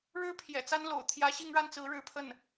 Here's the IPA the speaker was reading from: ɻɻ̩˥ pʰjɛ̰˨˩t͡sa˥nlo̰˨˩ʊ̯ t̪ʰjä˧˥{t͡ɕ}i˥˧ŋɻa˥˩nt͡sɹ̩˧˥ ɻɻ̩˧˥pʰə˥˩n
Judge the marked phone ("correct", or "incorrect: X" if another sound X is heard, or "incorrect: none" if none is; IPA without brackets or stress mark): incorrect: ɕ